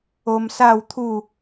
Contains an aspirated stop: yes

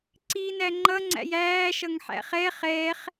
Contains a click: yes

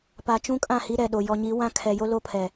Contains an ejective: yes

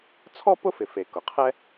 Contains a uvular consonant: yes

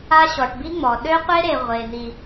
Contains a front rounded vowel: yes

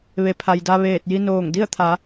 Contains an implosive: no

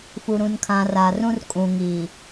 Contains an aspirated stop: yes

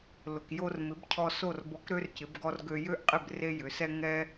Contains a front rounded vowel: yes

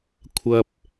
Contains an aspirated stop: yes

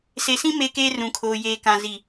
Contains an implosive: no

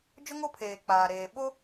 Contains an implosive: yes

